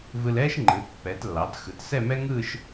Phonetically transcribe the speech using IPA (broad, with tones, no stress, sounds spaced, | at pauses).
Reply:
v ɯ˧ l ɛː˥ ʃ ŋ͡ǃ ɯː˩˧ t pː ɛː˩˧ t lː ɑː˩˧ t x ɯ˩˧ t s ɛ˥˧ m ɛ˥ ŋ ɯː˥˧ ʃ